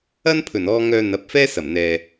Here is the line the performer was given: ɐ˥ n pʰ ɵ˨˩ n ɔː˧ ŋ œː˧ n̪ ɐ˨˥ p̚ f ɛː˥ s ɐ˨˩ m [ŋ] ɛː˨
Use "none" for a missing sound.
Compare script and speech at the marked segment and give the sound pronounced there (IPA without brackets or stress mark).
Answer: n̪